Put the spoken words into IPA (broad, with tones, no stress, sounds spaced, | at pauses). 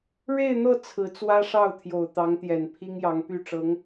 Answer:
ɻ e˥˧ ɪ̯ n̪ ɤ˥˩ t͡sʰ ɹ̩˧˥ t͡s w ä˥ ʂ ɑ˥˩ ʊ̯ t̪ʰ j o˨˩ ʊ̯ t̪ ɑ˧˥ ŋ t̪ j ɛ˨˩ n pʰ i˥ ŋ j ɑ˧˥ ŋ p y˥˩ ʈ͡ʂ ɤ˧˥ ŋ